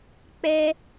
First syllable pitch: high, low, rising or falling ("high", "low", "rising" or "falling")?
high